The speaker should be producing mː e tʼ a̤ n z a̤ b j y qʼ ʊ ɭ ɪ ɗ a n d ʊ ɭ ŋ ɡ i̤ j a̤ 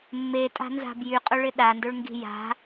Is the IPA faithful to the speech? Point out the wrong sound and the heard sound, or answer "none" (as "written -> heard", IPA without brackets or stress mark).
none